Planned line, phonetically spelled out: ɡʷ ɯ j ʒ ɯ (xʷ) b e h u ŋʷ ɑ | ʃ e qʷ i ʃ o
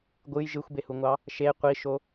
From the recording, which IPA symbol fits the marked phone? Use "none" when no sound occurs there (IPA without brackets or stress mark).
xʷ